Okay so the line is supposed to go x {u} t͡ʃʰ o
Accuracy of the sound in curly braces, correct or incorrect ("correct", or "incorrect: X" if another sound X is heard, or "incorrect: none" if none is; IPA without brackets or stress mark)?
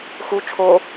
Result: correct